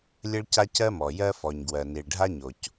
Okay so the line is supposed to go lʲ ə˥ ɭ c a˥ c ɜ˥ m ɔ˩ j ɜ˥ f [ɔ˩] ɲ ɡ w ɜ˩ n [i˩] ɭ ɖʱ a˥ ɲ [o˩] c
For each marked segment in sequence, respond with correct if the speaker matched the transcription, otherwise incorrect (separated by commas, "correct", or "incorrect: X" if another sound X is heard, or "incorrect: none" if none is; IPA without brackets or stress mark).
correct, correct, correct